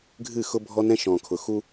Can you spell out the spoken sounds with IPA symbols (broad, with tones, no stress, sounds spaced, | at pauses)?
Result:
ɡʱ ɨ˦˨ x ʊ˦ bʱ ɔ˦ n ɛ̃˦ ʃ ɔ̃˨ kʰ ʊ˨ x u˦